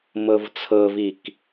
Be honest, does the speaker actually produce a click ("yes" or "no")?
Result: no